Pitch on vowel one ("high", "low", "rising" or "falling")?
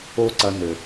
high